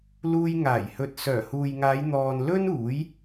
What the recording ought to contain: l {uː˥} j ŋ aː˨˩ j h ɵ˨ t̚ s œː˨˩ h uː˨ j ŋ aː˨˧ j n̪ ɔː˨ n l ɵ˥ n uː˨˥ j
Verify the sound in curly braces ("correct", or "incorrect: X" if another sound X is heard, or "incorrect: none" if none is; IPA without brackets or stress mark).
incorrect: uː˧